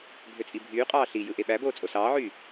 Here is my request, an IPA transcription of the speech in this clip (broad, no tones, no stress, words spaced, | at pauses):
bʱøt͡sʼibʱyːqʼɑː ɬi jɯʔeɓæboː t͡sʼosɑːʕyː